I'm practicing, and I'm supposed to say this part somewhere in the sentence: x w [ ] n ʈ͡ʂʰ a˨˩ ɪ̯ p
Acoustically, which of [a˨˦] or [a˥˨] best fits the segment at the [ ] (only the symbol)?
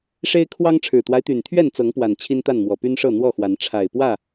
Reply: a˨˦